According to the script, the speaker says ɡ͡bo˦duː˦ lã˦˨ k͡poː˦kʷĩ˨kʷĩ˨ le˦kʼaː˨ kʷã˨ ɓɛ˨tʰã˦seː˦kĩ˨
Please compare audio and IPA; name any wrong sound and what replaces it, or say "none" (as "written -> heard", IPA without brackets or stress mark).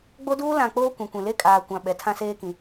ɛ˨ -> ɛ˨˦